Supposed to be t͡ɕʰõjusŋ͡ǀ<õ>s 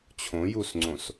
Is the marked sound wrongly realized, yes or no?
no